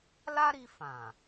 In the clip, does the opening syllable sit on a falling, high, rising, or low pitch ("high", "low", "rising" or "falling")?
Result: high